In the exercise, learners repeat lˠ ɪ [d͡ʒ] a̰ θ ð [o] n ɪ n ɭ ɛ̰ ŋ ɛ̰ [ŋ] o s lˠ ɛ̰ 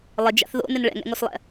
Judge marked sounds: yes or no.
yes, no, yes

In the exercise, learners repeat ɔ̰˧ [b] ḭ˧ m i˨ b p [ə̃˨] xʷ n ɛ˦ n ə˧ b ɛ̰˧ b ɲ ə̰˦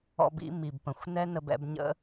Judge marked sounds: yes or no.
yes, yes

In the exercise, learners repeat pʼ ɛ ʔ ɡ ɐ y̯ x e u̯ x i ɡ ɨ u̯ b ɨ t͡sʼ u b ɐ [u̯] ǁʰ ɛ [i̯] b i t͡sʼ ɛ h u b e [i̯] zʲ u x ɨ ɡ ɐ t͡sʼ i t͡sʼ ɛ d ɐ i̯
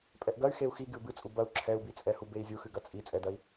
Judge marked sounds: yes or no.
yes, no, yes

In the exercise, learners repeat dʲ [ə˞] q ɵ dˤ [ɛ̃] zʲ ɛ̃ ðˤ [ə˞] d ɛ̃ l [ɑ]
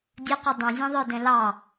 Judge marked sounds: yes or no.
no, no, yes, yes

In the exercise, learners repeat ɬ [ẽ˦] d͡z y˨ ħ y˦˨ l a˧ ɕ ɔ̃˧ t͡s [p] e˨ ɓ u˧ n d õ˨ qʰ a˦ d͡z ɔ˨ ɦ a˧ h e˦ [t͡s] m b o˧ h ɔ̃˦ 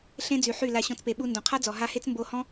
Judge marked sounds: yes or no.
yes, yes, yes

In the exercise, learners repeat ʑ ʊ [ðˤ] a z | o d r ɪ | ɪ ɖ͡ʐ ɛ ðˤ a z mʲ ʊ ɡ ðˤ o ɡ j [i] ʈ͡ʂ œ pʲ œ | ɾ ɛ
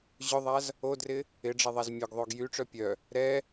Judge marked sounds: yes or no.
yes, no

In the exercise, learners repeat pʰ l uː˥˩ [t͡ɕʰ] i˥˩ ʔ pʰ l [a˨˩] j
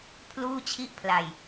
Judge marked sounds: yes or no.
yes, yes

